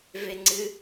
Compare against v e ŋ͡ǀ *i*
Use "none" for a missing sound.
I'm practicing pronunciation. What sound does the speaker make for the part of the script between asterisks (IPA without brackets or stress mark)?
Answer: ɨ